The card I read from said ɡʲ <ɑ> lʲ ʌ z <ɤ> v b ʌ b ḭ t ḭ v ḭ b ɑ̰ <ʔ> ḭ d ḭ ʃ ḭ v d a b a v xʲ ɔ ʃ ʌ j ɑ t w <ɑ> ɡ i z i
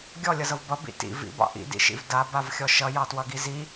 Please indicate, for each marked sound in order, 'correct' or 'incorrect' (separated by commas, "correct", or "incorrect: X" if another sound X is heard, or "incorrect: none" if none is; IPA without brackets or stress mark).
incorrect: ɔ, correct, correct, incorrect: ʌ